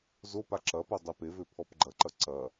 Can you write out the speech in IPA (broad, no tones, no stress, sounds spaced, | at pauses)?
z o p a ǁ ɐ p o dˤ e p e v ø pʰ ɔ p ɡ͡ǃ ɐ ǃ ɐ ǀ ɐ